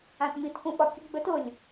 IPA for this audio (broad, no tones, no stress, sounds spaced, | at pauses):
ã t m i t k ũ ɓ ɒ kʲ ə ɡ͡b ɵ t ʊ lʲ